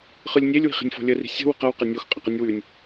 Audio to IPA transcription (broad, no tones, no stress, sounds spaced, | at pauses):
χ ɯ lʲ nʲ e lʲ w i̤ χ i̤ nʲ f ɔ̤ lʲ ə r i̤ sʲ ə̤ w ə̤ q ɐ w q e nʲ o x qʼ ɐ q ɯ nʲ w ʉ nʲ